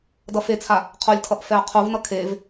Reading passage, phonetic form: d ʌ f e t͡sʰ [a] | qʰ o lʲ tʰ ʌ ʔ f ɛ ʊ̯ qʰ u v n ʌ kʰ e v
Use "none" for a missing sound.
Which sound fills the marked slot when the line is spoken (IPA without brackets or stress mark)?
a